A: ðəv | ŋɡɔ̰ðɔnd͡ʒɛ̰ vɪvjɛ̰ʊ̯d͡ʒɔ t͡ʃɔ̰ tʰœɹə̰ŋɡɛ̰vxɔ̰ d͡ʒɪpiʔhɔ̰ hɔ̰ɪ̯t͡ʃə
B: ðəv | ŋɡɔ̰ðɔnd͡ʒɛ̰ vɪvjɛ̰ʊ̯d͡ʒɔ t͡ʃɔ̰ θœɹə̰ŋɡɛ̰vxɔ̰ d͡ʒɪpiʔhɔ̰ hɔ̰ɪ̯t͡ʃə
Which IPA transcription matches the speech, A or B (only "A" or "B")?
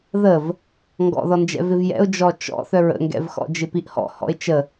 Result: B